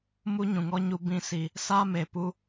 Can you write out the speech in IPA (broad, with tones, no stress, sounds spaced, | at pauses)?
m u˦ ɲ ũ˨ ŋ ɔ˦ ɲ u˧ b ĩ˧ s i˨ | s a˦ m e˨ p u˧